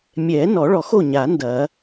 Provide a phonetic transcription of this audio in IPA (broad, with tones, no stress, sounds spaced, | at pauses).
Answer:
mʲ ɛ˨˩˦ n ɔ˨˩˦ ɭ ɔ˨˩˦ x o˥˩ ɲ a˨˩˦ n d ɐ˨˩˦